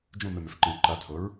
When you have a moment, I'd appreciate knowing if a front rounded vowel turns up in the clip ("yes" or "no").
yes